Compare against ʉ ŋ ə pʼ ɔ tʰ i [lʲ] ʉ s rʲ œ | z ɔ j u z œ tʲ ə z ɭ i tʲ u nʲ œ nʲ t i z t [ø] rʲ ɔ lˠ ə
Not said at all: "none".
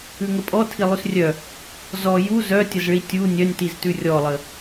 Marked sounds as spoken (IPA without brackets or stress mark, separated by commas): lˠ, ʉ